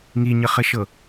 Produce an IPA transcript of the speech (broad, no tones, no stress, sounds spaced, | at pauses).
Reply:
ŋ i ɲ ə χ ɘ ʃ ɤ